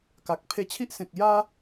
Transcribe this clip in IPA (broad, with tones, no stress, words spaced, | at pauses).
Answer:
ka˨k̚ pʰe˧t͡ɕʰi˦ʔsẽ˨k̚ ja˦